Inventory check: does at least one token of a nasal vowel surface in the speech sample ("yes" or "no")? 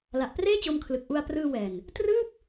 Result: no